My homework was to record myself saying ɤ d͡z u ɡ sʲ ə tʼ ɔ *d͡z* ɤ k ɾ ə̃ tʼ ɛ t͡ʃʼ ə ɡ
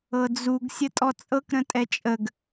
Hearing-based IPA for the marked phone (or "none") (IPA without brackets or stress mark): t͡sʼ